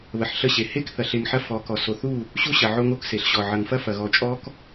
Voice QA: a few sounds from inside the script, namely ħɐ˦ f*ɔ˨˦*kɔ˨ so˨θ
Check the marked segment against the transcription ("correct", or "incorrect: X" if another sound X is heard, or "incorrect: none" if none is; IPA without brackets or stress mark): correct